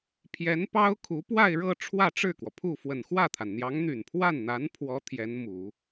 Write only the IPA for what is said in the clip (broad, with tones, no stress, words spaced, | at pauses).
pʰjɛ˧˥npɑ˥ʊ̯ kʰu˧˥ pwa˥˧ɪ̯ɻɤ˥˧ ʈ͡ʂʰwä˥˧ʈ͡ʂɻ̩˥˩kwɔ˩pʰu˥˩ fwə˨˩nxwä˥˩t̪ʰa˩nn̪jɑ˧˥ŋ n̪y˨˩npʰwa˥˩nn̪a˧˥npʰwɔ˧˥ t̪ʰjɛ˧˥nmu˨˩˦